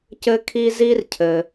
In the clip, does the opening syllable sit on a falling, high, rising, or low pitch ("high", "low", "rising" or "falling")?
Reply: high